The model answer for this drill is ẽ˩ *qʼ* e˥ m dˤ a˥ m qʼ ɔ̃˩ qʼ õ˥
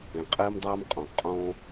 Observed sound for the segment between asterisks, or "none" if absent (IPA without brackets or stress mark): qʼ